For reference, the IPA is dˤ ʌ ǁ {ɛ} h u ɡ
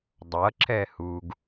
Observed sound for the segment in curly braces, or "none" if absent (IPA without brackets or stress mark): ɛ